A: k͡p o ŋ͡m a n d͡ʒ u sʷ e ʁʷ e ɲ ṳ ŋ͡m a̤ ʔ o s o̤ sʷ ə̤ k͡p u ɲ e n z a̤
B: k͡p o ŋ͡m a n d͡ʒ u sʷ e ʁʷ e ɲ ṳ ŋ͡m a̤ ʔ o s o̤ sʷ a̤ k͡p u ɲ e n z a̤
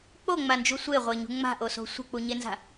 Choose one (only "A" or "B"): A